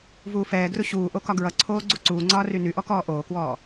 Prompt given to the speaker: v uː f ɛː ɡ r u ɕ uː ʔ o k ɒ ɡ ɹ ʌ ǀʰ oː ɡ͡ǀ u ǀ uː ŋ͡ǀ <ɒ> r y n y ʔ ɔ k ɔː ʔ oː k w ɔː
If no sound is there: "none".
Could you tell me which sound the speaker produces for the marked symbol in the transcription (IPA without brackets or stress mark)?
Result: ɒː